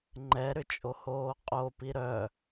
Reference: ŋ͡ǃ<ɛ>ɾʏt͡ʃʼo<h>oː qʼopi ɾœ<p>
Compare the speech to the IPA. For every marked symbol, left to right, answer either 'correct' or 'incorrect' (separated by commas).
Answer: correct, correct, incorrect